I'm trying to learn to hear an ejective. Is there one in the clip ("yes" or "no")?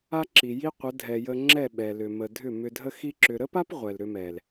no